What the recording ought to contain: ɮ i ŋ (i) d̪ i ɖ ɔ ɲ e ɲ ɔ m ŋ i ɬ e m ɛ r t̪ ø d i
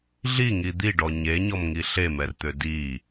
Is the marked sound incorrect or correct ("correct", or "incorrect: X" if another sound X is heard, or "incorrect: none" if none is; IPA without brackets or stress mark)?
correct